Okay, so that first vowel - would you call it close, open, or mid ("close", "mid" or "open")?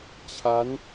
open